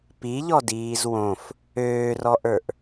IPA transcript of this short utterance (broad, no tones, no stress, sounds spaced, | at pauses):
p i ʎ ɔ d iː z w õ f | øː r ɔ ʔ ə˞ ʔ